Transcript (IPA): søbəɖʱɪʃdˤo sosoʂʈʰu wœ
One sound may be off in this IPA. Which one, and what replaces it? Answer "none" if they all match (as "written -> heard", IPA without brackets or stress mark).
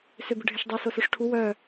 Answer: none